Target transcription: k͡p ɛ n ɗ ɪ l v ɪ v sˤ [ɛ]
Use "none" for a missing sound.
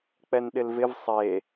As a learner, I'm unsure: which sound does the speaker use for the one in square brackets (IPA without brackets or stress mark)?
e